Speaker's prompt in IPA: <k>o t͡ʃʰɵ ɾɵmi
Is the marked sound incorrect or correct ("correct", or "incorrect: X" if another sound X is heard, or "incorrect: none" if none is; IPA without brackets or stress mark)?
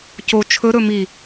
incorrect: c